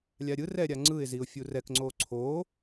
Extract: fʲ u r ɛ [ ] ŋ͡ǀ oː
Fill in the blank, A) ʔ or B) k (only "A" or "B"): B